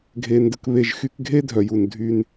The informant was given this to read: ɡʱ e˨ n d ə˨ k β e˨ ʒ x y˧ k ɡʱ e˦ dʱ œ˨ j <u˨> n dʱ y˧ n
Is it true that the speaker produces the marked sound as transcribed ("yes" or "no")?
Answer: yes